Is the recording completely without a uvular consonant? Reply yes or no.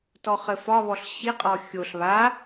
no